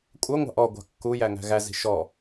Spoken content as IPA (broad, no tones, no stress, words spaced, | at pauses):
kʷʼʌŋʷɑ̤ʔ ɔɡʷɑ̤ kːu jæŋæ̤ɣæzi̤ ʃɔ